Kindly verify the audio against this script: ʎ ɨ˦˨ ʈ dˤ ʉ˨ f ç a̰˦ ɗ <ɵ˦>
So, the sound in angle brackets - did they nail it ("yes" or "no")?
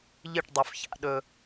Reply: yes